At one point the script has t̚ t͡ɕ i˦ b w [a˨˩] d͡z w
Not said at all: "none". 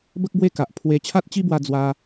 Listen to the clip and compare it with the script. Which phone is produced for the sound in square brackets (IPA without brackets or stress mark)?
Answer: a˧